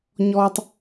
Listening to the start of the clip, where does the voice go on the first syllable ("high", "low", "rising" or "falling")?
low